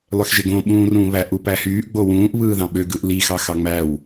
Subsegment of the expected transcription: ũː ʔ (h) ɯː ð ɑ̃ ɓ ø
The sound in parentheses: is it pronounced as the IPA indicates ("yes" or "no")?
no